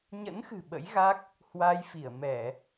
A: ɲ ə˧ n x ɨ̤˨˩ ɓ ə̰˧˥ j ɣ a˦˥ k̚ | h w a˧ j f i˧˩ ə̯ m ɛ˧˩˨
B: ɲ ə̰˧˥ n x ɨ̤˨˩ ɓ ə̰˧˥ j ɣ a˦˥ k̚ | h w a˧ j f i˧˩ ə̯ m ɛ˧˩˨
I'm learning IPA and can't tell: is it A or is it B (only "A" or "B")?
B